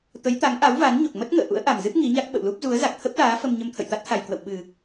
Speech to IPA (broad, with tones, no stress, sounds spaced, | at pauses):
t̪ ə˨˦ j t̪ a˨˦ ŋ ʔ a˨˦ w v a˨˦ n ɲ o˨˩ k̚ m ə˦˥ t̚ ŋ ə̰ː˧˨ ʔ ṵ˧˥ ə̯ ʔ a˨˩ m z ɨ˦˥ p̚ ŋ i˨˦ ɲ a˦˥ k̚ ɓ ə̰˧˨ w l u˦˥ p̚ z u˨˦ ə̯ z a˨˩ k̚ t̪ʰ ə˦˥ p̚ l aː˨˦ f ə˧ m ɲ ə˧ m t̪ʰ ə̰˧˨ j t̪ a˦˥ t̚ t̪ʰ a˨˩ j k w ə̰˧˨ w ɓ ɨ˨˩